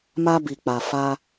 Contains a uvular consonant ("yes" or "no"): no